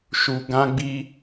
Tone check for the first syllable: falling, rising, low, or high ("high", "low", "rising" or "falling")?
low